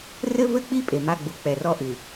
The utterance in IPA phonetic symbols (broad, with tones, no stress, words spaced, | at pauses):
rɘ˦vɘ˦k͡pi˦ pʼe˨ma˦ɡ͡bu˨˦ k͡pɛ˨rɔ˦ʔɨ˨